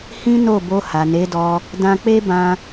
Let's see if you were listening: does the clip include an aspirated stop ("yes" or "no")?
no